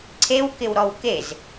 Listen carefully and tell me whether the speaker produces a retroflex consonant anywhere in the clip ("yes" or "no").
no